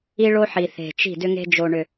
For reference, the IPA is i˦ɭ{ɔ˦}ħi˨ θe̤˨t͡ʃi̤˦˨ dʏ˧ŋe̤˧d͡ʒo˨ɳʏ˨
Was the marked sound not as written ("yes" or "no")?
yes